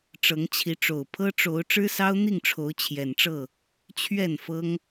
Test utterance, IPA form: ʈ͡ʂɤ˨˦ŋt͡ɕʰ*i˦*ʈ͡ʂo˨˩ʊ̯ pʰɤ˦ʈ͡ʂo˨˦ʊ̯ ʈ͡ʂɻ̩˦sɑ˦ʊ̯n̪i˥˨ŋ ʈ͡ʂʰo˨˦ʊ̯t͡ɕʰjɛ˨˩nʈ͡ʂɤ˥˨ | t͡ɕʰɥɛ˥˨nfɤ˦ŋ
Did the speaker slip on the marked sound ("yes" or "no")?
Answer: yes